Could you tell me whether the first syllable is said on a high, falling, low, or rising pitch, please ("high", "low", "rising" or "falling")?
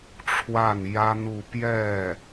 falling